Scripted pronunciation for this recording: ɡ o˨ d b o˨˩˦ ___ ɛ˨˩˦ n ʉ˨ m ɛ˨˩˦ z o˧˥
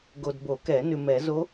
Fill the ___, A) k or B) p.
A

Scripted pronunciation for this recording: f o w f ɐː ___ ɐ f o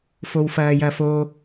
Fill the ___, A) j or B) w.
A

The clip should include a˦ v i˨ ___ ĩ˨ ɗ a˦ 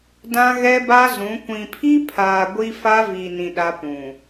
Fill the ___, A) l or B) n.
B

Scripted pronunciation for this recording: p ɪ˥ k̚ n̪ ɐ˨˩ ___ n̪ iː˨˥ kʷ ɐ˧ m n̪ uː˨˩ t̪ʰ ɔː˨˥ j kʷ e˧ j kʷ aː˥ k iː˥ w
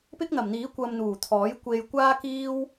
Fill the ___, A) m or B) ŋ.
A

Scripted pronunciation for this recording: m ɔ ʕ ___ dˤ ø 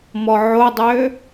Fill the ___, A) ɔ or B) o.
B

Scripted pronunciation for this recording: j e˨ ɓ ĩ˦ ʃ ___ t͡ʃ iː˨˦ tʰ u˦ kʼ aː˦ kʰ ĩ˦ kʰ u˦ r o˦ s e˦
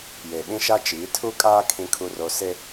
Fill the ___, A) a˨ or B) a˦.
B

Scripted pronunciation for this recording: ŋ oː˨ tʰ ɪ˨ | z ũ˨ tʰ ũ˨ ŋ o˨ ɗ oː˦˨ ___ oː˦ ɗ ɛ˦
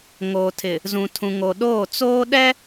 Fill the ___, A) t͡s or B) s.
A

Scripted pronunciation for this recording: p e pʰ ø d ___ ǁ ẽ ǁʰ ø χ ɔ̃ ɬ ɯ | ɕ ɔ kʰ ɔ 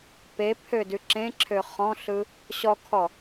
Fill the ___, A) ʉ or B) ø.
A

